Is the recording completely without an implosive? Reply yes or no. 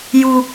yes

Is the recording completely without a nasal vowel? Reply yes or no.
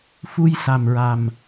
yes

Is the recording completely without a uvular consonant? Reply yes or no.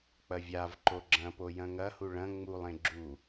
yes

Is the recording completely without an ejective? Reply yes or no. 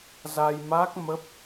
yes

